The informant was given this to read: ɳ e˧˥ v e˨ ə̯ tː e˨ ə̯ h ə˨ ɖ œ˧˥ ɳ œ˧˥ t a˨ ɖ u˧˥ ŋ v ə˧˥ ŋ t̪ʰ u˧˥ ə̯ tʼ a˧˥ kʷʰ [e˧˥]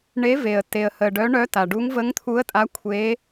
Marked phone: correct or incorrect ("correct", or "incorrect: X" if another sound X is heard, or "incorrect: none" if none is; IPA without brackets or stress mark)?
correct